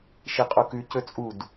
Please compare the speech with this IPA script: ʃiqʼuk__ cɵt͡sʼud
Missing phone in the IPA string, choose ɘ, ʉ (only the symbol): ʉ